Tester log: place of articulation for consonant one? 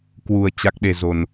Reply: velar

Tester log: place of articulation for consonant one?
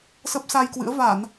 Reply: alveolar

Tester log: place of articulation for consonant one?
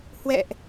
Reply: glottal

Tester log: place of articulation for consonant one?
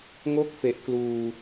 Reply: velar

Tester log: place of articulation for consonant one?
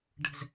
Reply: retroflex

